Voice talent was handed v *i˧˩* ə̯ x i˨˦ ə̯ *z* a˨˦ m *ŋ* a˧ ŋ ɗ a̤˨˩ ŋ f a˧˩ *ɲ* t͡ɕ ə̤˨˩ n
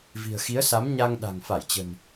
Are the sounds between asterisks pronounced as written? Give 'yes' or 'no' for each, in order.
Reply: no, no, no, no

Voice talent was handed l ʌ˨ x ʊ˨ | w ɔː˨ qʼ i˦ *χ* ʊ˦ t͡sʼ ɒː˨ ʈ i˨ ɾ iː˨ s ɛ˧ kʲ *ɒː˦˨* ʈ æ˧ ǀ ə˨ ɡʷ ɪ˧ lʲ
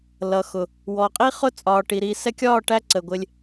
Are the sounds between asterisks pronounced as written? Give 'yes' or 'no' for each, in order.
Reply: yes, yes

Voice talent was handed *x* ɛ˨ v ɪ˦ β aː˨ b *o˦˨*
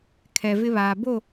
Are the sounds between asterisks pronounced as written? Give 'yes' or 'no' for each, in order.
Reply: no, yes

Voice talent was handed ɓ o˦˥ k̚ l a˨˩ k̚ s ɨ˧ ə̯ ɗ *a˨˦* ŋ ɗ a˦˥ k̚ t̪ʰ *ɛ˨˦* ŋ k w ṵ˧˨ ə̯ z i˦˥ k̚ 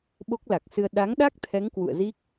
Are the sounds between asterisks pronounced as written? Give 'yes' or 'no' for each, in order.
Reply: yes, yes

